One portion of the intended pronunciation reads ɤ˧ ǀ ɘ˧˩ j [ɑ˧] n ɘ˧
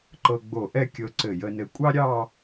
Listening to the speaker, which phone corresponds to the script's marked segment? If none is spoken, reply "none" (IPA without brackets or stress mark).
ə˧